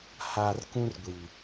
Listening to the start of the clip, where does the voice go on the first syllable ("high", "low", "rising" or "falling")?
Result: low